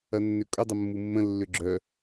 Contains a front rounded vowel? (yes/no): yes